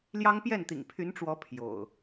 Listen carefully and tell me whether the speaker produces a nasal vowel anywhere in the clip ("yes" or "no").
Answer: no